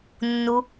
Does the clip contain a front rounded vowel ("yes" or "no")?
no